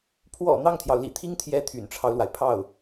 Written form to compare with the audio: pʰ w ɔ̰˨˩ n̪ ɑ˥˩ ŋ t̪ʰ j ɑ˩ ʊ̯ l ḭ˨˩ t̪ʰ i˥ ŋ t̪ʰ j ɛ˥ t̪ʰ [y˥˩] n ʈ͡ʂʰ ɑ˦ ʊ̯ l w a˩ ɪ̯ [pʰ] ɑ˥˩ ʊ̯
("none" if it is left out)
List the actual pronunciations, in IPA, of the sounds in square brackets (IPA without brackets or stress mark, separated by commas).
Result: y̰˨˩, pʰ